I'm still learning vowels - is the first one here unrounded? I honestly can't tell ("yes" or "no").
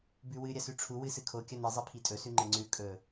no